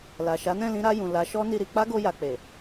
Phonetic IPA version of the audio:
la˨ʃa˨˦nɛ̃˦˨lĩ˨˦ ɾa˧jũ˨ la˨˦ʃɔ˦ ni˧ɾi˧ k͡pa˦ɡo˧ja˨ k͡pe˨

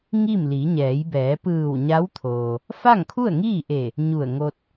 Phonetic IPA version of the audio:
ŋi˥˨m li˩˧ɲɛː˩˧jbɛː˩˧ pɯː˧˩w ɲa˧˥wt̪ʰoː˩ | fa˥˨ŋkʰu˥˨ə̯ŋiː˥˨ʔe˧˩ | ɲu˧˩ə̯ŋo˧t̚

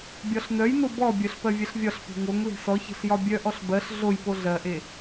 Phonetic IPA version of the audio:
bʲɒɬnœjno bɔbʲœɬ pɜvʲɛɬvʲɒɬpe̤ ŋoŋ le̤sɔçe̤ɬ jɒbʲœʔɔɬ bɜɬ ɮojpo ɮɜʔe

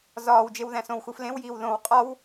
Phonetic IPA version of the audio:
zɒːwd͡ʒewðæ̃ sõwxu flẽwjiːw ðõw qʼɒw

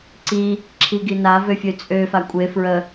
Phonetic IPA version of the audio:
ǀi | ǁʰiɡina vøfʲøt͡sʼø fakʷʼe fɹə

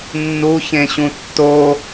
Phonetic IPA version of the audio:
nːuçẽɕũ tːo

